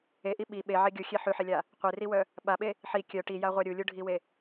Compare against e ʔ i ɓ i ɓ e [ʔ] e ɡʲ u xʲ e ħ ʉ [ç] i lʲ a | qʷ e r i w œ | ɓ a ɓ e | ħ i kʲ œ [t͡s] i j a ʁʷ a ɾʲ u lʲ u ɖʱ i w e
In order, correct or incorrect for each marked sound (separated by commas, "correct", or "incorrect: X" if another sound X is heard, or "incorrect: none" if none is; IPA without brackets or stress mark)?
incorrect: ʕ, incorrect: ħ, incorrect: ʈ